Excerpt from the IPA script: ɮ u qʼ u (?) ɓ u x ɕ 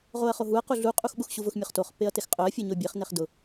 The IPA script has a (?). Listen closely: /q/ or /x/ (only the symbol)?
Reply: x